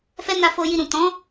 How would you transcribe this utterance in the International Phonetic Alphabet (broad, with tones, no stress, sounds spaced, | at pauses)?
f ɛ˦ n a˧ f o˧ j i˧ ɾ ũ˨ t ɔ̃˨˦